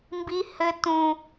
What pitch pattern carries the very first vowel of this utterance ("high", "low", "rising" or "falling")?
high